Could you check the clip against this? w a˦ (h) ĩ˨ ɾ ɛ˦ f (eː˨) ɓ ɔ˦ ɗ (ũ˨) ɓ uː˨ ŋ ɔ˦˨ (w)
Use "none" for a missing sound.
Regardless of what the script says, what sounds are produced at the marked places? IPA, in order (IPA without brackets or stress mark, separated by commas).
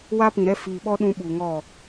p, iː˨, ũ˦, none